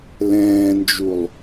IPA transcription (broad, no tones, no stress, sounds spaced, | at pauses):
l ɛ̃ː n d͡ʒ u lˠ